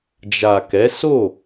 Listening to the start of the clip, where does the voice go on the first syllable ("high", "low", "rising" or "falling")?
low